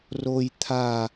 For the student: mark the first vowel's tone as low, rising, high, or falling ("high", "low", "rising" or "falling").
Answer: high